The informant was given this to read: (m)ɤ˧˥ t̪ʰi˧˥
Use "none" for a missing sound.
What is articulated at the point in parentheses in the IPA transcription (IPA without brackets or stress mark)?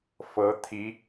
f